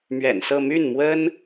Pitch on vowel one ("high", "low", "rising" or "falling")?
low